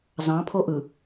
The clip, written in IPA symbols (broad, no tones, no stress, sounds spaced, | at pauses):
z ɑ̃ pʰ o ʔ ɯ